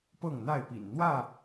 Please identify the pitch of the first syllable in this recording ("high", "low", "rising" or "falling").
falling